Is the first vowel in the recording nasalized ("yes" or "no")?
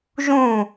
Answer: yes